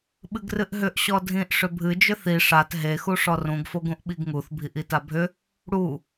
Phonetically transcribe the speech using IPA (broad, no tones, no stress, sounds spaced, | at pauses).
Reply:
ɓ ɨ ɡ r ɨ ʔ ɦ ʏ ʔ ɕ ɔ dʱ ĩ ʔ ʂ ʏ bʱ ɨ d͡ʒ ʏ θ i ʂ a t ɦ e x u ʂ ɔ r ũ ɡ f o ɡ ũ ʔ ɓ i ɡ ŋ u θ bʱ i ʔ i t a bʱ ʏ | ɽ u